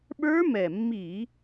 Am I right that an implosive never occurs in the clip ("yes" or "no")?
no